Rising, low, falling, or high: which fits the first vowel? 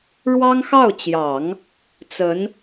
high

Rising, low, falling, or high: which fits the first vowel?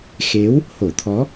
rising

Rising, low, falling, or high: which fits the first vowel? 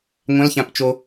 rising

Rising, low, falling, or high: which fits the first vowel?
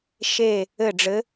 falling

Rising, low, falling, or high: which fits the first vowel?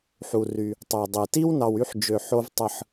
low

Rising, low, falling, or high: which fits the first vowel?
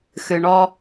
low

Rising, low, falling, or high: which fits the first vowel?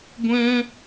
high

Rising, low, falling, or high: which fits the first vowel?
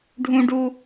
high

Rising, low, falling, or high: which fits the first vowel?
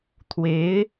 rising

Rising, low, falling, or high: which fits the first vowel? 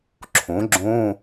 rising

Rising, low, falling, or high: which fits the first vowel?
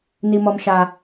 low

